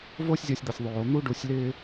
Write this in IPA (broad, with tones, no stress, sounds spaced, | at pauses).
v o˦ sʲ zʲ ʌ˧ sʲ d̪ ʌ˨ sʲ ðˤ oː˨ n̪ u˦ ɖ u˧ sʲ l ɪː˦